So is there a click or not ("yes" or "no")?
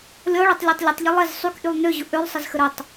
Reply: no